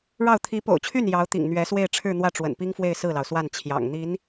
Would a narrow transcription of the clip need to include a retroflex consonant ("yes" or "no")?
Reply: yes